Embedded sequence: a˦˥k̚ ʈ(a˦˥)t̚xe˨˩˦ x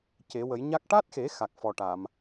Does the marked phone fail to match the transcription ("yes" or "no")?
no